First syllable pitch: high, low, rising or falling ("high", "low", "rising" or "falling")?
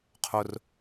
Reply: low